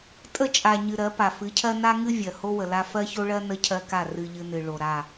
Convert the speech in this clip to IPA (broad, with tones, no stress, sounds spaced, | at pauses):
tʼ ə˦˨ t͡ʃʼ a˨ ɲ ɨ˨ ɾ ɜ˨˦ p a˨ f ɨ˨˦ cʰ ɜ˦ n a˦ ŋ ɨ˦ vʲ ɜ˨ h o˦ w ə˨ l a˦ f ɜ˦ ç o˦ ɭ ɜ˦ n ə˦ cʰ ɜ˦ k a˦˨ r ɨ˦ ʎ ɨ˦ n ɨ˨ ɭ o˨ ɾ a˦˨